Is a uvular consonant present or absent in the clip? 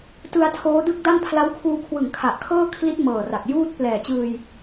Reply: absent